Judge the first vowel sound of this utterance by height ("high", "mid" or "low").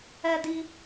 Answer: mid